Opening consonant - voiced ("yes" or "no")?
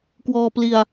no